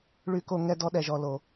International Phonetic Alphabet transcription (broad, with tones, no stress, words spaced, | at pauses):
ɭy˨ko˨ ŋɛ˦dɔ˦ɗɛ˨ʒɔ˨ lo˨